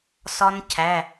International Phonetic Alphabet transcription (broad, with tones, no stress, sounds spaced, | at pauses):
s ɒ˦˥ n cʰ æ˩˧˩